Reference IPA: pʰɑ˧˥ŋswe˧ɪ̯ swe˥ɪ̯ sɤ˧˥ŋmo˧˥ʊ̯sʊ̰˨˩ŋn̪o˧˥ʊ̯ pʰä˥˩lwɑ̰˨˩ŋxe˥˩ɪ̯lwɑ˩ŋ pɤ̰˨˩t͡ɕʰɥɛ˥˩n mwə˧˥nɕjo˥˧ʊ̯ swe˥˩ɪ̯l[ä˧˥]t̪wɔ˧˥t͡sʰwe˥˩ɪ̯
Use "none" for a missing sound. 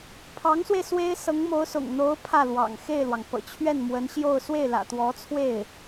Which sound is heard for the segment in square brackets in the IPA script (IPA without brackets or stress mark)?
ä̰˨˩